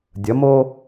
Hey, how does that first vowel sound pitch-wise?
rising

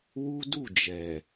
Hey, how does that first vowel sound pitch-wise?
high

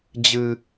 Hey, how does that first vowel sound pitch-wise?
high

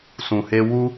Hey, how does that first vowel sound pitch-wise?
low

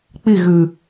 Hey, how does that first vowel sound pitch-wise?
falling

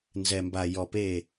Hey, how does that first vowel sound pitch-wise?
low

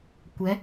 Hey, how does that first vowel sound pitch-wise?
rising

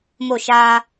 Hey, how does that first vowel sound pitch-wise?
falling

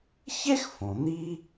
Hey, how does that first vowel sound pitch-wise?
high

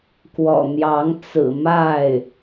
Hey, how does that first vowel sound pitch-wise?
low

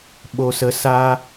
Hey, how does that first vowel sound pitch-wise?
low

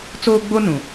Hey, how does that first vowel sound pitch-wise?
high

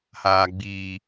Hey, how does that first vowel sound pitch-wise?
low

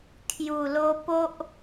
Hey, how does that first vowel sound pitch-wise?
low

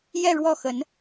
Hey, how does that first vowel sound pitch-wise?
falling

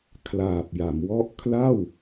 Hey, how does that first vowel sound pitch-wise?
low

